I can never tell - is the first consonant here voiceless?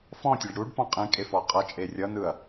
yes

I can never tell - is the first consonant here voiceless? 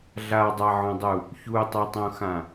no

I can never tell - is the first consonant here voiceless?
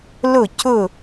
no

